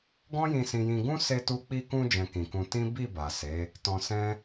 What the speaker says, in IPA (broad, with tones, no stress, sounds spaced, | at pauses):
ɡ ɔ̃˦ j ĩ˧ s ĩ˧ j ĩ˧ ɡ ũ˦ s e˧ t u˧ k͡p i˧ k ũ˧ d͡ʒ ɛ̃˧ k ĩ˨ k ũ˧ t ĩ˦ b i˦˨ b a˨ s e˨˦ | t ɔ̃˧ s ɛ̃˦